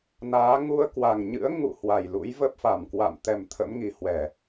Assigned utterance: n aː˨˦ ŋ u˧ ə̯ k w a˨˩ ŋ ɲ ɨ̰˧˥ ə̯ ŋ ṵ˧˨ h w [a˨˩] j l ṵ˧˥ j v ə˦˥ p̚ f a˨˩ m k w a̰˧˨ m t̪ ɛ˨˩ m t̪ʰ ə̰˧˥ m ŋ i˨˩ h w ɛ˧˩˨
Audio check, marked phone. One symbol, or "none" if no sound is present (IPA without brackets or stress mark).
a˨˩